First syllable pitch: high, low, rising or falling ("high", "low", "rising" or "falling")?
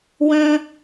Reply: high